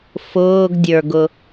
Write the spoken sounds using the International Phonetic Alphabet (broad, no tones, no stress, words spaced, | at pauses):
fʊːɡdʲə˞ɡʊ